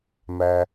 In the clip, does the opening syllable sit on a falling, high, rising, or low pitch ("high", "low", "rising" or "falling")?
low